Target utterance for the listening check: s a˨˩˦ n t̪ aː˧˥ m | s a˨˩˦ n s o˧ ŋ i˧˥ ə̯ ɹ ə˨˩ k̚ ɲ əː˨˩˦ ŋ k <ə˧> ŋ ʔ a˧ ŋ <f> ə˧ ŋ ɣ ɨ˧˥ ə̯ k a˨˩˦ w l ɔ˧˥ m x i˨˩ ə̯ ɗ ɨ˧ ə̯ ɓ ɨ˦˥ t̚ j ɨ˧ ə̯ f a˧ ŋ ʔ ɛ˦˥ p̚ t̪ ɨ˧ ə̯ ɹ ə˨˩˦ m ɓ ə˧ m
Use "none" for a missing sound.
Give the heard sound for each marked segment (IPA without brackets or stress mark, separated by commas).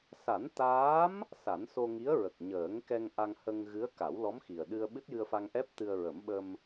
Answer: ɛ˧, h